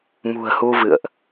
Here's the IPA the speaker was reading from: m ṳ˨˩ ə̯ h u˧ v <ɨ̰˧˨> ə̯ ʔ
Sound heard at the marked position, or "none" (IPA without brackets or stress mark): ɨ̰˧˨